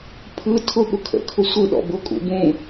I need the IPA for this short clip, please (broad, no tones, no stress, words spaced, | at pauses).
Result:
pʰɯ tʰʊ ɠʊkʰə̰ kʰʊsʷɯ ɗɔ̰bʊ kʼṵbũ